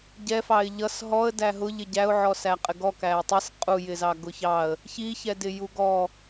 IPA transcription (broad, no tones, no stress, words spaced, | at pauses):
ɟɛfɑɪ̯ ʎʌs ɦɔə̯ dæɦʊʎɪ ɟæʊ̯ʕɔ sæqʼɪɡɔ kæɪ̯tˤis qʼu jɪzɑɡʊçɑə̯ | çiçɛdɪ juɡɔ